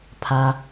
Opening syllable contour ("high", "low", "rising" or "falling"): low